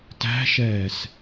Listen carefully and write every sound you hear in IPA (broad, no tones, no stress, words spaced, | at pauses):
tæ̤ʃɛːs